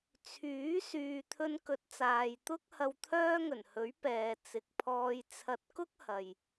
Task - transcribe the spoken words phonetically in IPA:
t͡sʰ yː˨˥ s yː˨ t̪ʰ ɵ˧ n k ɵ˨˥ t̚ t͡s aː˨ j t̪ ʊ˥ k̚ h ɐ˧ w t̪ʰ œː˥ ŋ ɵ˨˩ n h ɵ˨˥ ɥ p ɛː˨ t͡s ɪ˨ k̚ pʰ ɔː˧ j t͡sʰ ɐ˧ t̚ k ʊ˥ k̚ h ɐ˨ j

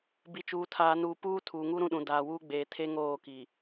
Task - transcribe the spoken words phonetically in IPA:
b i˨ t͡ʃ uː˨ tʰ aː˨ n uː˨ p uː˦ tʰ uː˨ ŋ u˦ ɾ ũ˦˨ ɗ ũ˨ d aː˨ w uː˦ ɡ͡b eː˨ tʰ e˦ ŋ oː˦˨ k iː˨

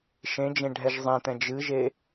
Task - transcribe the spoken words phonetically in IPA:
ʃ ẽ d͡ʒ ẽ ɖʱ ɛ ʒ zˤ ẽ t̪ ɛ̃ d͡ʒ ɨ ʒ e

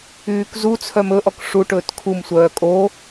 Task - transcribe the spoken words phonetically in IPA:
yː k z u t͡sʰ œ m ɵ ʔ ɔ k ʂ u ʈ ɵː t kʰ u m sʷ œː kʼ o

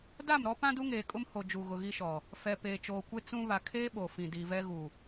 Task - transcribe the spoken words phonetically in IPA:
d a˦˨ m ɾ ɔ˦ p ã˦ d u˦ ŋ eː˨ kʼ ʊ˦ m h o˨ d͡ʒ u˨ ɣ ʊ˨ ɣ i˦ ʃ ɔ˨ | f ɛ˨ p eː˨ t͡ʃ oː˨ kʷ e˦ t͡s ũ˦ β a˨ kʰ eː˦ ɓ o˨ f ĩ˨ d iː˨ v ɛ˦ ɣ u˨

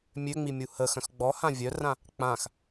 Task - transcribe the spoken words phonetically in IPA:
mʲ ø ŋ͡m i mʲ u h ə x œ̃ x ɡ͡b ɔ h ã vʲ œ r ã | k͡p ã x

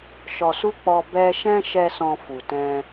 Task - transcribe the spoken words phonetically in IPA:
ʃ ɔ˨ s u˧ k͡p ɔ˧ b ɛ˧ ʃ ɛ̃˦ ʃ ɛ˧ s ɔ̃˧ f u˨ t ɛ̃˧

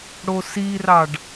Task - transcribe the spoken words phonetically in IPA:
ɽ o s i r ɑ ɖ

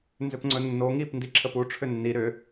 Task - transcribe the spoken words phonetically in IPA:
n z ʏ p ŋ͡ǀ ɵ nː o ŋ i p n d i ǁʰ ə p u ʈ͡ʂʰ ʏ nː i ɾ ʏ

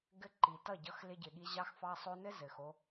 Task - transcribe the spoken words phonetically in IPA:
ɡ ɘ˦ ǃ i˨ t ʌ˦˨ ɟ ʌ˧ x l ɪ˧ ɟ ɪ˨ ɠ i˧ ʑ ɑ˦ x f ɑ˦ sˤ o˦ n ɘ˦ z ɘ˨ x o˧

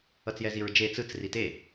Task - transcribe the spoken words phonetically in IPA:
ʌ t͡s j ɛ z i ɹ d͡ʒ e t͡s ɯ t͡s r i t e

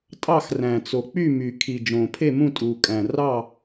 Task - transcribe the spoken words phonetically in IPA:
tʼ ɑ˦˨ x r æ̃˩ t͡s o˩ k͡p y˦˨ m y˩ kʰ i˩ d͡ʒ õː˩ pʰ e˦˨ m ũ˦˨ tʼ uː˩ kʼ æ̃˩ r ɑ˦˨

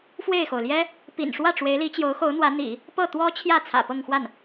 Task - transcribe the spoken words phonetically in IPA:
f w e˥˩ ɪ̯ x o˩ ʊ̯ l j ɛ˥ | p ḭ˨˩ n ʂ w ä˥˩ ʈ͡ʂ w e˧˥ ɪ̯ l i˧˥ t͡ɕ j o˧˥ ʊ̯ x o˧˥ ʊ̯ n̪ w ä˧˥ n̪ ḭ˨˩˦ | p ɤ˥˩ t̪ w ɔ˥ t͡ɕʰ j ä˥˩ t͡sʰ ä̰˨˩ p ɤ˥˧ ŋ x w a˥˩ n

